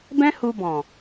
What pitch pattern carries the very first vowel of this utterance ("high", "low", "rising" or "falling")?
high